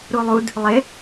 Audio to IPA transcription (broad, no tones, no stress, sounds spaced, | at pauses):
ɾ u lˠ u d | lˠ ɪ